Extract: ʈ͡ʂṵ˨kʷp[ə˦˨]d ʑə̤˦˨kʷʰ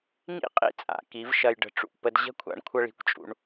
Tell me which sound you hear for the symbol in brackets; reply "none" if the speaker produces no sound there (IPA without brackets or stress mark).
ə˧